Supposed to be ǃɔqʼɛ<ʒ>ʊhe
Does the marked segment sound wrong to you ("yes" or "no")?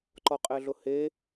yes